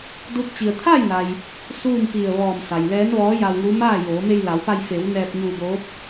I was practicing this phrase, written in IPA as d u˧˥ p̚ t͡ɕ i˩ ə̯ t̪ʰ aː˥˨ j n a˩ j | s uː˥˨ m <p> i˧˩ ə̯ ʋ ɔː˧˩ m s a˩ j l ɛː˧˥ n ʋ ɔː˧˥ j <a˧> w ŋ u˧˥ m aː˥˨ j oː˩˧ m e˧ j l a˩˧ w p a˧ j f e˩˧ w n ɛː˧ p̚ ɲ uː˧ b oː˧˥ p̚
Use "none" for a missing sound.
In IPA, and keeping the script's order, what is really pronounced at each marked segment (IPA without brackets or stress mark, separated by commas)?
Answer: p, a˧